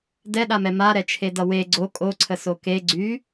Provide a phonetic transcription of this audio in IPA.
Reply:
d ɛ ɗ a m ɛ m a ɾ ɛ t͡ʃʰ e d ʌ w e ɡ͡ǀ o kʼ o ǀʰ ə s o k e ɡ͡ǀ y

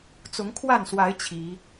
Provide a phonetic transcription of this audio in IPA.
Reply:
t͡s ʊ˨˦ ŋ kʰ w a˥˨ n s w a˨˦ ɪ̯ t͡ɕʰ i˨˦

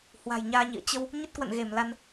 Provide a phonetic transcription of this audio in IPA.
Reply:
h w a̤˨˩ j ɲ aː˧ ɲ ḭ˧˨ ə̯ t͡ɕ ə˧ w | ɲ ə˦˥ t̚ k w ə̰˧˨ n ɣ e˧˩ m l a˧ n

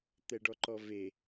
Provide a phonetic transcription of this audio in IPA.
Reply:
t̪ ɛ ɖ ɔ ǃ ɔ v e

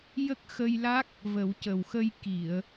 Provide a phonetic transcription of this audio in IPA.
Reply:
j ə˦˥ k̚ x ə˧ j l a˦˥ k̚ | v ə˨˩˦ w c ə˨˩ w x ə˧ j k i˨˩˨ ə̯

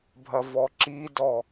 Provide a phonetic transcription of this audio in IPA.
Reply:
bʱ ɐ v ɔ ǁ i d ɔ

